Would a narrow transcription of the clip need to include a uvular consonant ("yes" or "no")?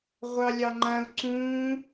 yes